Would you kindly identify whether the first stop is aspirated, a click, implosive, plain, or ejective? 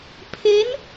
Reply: aspirated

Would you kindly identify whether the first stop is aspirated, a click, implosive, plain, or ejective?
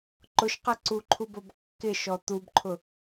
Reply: click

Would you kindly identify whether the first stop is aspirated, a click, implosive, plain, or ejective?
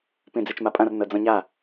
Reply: plain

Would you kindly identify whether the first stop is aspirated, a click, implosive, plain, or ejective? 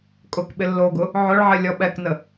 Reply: ejective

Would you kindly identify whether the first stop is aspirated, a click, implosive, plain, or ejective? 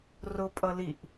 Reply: ejective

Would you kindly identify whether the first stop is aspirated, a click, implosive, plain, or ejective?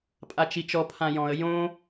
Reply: ejective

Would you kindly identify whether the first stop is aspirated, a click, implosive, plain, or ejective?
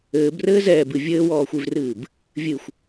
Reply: plain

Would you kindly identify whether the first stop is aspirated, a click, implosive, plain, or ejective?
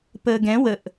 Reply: plain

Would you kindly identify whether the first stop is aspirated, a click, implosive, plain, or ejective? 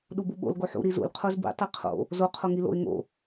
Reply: implosive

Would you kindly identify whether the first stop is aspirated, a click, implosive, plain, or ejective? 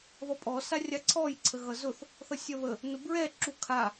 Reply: ejective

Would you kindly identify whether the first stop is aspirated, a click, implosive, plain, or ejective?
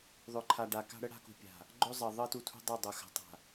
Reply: click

